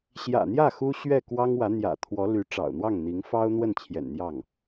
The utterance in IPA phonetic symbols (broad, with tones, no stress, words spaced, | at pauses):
ɕjä̰˨˩n̪jä˥˩ xu˥ɕɥɛ˥˩ kwɑ˥ŋwä˧˥n̪jä̰˨˩ t̪ʰwɔ˧˥ly˧˥ ʈ͡ʂɑ̰˨˩ʊ̯n̪wɑ˥˩ŋn̪i˧˥ŋ fɑ˥ʊ̯n̪wə˥˩n t͡ɕʰjɛ̰˨˩nn̪jɑ˥˩ŋ